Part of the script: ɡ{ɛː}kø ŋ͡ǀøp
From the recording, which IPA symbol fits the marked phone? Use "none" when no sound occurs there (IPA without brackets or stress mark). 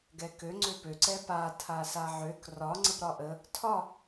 ɛ